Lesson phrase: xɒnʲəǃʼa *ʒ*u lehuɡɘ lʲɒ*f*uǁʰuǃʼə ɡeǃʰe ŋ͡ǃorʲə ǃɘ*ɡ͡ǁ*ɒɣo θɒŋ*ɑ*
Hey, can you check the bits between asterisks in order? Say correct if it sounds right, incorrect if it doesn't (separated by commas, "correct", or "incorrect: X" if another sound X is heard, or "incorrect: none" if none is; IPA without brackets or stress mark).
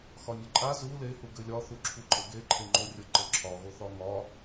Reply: incorrect: z, incorrect: θ, incorrect: ǁʰ, incorrect: ɒ